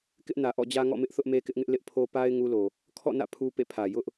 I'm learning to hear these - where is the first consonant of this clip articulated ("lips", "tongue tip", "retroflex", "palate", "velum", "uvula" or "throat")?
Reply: velum